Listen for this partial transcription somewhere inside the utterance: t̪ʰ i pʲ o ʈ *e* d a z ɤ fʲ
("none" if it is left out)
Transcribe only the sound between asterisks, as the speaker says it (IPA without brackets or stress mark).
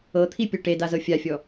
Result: e